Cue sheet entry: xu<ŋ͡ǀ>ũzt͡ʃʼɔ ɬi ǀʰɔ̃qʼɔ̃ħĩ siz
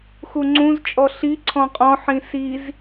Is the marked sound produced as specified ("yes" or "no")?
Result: yes